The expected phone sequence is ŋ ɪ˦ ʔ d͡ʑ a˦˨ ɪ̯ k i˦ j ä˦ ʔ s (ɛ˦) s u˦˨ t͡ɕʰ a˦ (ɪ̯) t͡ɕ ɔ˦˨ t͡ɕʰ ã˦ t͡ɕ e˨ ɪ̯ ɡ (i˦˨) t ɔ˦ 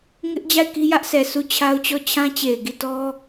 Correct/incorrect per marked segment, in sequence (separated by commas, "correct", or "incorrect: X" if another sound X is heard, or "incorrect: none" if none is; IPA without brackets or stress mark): incorrect: ɛ˨, incorrect: ʊ̯, correct